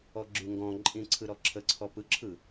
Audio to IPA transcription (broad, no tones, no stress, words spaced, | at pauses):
ɔɡ͡ǁyŋɡɔ̃ǃʼĩ ǀʰɯɾɔǁʰəǀʰɔ pɯǁʰɯ